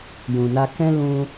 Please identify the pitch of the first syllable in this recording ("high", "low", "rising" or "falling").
low